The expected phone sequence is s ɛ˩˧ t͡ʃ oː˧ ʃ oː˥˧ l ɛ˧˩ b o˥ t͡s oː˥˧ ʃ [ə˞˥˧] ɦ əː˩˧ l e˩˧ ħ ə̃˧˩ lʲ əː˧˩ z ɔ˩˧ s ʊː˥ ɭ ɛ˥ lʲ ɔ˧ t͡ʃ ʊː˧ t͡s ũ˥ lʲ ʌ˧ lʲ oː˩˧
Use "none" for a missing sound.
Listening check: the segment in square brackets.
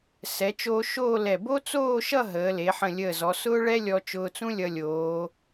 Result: ʌ˥˧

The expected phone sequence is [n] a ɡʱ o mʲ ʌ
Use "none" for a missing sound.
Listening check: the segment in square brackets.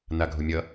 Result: n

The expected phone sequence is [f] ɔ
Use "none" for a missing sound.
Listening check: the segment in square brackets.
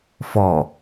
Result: f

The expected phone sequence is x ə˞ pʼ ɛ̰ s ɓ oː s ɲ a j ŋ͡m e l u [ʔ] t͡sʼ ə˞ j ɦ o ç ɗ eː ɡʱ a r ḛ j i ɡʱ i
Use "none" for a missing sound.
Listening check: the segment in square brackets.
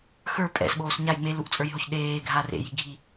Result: ʔ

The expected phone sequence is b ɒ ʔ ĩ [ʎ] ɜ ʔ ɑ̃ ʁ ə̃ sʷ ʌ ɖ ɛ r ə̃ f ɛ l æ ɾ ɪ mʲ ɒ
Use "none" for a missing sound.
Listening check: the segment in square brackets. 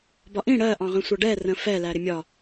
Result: ɽ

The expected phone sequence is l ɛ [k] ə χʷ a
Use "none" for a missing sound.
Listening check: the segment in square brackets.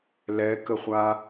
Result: k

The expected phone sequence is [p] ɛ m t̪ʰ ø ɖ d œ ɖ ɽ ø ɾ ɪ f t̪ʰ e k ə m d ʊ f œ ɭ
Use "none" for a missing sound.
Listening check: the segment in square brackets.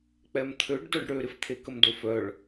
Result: k͡p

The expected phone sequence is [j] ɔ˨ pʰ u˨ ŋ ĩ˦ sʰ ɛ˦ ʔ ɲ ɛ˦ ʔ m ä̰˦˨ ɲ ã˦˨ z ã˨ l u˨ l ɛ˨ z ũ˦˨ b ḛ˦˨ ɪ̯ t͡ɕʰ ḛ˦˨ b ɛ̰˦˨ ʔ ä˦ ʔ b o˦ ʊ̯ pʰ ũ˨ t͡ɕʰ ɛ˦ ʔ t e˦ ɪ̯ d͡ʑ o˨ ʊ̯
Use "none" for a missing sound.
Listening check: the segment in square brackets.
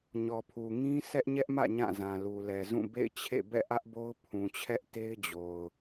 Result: ɲ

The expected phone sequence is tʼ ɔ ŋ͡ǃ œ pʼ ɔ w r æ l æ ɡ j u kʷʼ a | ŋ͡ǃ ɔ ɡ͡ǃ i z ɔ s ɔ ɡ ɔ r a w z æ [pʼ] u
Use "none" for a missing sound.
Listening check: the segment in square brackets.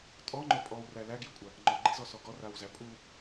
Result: pʼ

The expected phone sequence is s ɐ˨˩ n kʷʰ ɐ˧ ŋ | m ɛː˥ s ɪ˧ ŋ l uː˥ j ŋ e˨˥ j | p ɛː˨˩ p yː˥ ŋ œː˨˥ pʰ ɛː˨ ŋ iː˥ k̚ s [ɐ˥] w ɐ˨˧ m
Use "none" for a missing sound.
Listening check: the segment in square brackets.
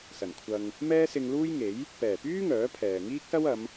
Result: ɐ˥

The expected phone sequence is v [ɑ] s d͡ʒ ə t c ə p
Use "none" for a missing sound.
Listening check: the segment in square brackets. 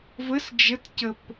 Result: ə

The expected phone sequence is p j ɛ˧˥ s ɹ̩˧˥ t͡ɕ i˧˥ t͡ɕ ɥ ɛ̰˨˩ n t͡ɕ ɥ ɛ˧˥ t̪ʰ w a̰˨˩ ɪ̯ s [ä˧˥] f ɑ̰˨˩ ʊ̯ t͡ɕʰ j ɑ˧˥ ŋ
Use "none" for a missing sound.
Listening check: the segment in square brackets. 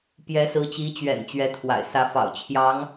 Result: ä˧˥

